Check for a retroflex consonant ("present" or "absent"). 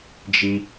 absent